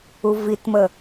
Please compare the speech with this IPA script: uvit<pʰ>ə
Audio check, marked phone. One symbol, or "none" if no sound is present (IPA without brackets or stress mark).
m